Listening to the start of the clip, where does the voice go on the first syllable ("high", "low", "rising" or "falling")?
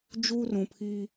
high